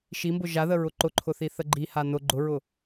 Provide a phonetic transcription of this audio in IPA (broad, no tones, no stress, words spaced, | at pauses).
ʃimbʊ ʒaðəɹʊ ǃʊǃʰʊθi θəɡ͡ǃiha nʊ ɡ͡ǃʊɹʊ